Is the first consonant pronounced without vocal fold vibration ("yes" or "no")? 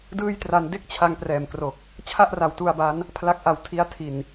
no